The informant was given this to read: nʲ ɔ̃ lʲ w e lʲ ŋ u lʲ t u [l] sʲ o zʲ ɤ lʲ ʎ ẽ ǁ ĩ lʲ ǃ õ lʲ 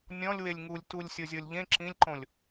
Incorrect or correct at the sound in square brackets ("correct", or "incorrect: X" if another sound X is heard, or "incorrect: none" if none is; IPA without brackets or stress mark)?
incorrect: lʲ